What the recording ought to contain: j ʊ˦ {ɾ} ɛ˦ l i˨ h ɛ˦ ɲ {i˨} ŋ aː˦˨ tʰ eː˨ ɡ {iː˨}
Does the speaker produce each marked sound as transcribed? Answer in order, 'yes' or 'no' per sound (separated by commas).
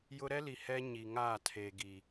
yes, yes, no